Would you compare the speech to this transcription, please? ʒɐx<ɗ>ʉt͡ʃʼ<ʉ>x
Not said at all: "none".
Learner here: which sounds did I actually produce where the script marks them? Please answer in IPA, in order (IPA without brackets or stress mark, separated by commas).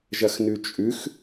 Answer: n, ʉ